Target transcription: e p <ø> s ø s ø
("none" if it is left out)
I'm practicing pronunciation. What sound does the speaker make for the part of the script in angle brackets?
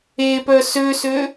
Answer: œ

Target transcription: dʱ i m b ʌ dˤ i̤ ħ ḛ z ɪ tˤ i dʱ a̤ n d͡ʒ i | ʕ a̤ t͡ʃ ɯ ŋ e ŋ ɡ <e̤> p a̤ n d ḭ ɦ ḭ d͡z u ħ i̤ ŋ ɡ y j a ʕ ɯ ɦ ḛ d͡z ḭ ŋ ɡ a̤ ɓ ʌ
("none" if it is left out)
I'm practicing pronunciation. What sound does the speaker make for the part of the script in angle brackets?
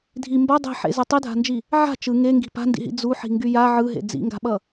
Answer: i̤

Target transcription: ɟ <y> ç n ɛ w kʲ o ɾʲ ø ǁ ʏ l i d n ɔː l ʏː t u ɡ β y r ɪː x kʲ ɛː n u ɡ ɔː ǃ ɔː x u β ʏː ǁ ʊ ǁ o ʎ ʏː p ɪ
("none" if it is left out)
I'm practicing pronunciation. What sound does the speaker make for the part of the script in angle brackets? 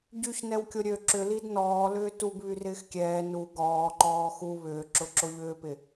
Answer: y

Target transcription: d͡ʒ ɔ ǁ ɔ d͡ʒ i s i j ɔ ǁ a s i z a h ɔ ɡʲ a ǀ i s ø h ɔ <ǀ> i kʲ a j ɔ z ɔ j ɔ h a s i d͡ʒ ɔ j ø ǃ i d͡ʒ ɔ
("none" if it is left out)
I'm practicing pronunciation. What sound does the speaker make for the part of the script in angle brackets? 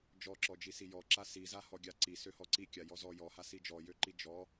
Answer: ǀ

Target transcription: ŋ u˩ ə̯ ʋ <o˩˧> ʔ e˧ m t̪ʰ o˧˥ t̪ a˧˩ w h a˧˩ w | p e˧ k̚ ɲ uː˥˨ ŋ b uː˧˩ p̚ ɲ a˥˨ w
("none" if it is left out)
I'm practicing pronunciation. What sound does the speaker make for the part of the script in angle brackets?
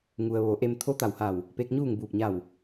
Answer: o˩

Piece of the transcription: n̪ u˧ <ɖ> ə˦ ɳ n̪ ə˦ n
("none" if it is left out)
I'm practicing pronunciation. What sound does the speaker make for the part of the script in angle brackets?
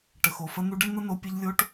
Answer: ɖ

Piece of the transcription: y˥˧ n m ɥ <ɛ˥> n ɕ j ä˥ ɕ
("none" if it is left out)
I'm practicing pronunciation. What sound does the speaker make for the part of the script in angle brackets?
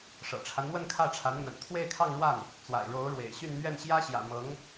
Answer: ɛ˥˩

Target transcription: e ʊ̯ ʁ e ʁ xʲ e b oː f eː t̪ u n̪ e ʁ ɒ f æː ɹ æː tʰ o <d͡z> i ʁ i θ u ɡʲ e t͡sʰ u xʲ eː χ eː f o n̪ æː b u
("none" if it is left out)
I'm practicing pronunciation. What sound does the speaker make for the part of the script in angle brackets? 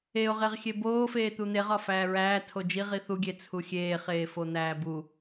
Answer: d͡ʒ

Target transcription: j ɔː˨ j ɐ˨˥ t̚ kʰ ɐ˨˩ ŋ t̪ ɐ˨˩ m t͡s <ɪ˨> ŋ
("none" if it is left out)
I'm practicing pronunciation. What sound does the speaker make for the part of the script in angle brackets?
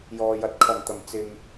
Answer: ɪ˨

